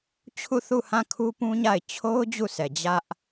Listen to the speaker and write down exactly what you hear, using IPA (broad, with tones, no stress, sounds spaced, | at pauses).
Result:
t͡ɕʰ u˦˨ θ u˦˨ h ã˦˨ kʰ u˦ p ũ˦ ɲ a˦˨ ɪ̯ t͡ɕʰ o˦ ʊ̯ d͡ʑ u˦˨ sʰ ɛ˨ d͡ʑ ä˦ ʔ